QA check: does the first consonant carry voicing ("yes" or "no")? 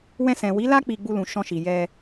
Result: yes